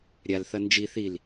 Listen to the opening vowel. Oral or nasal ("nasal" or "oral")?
oral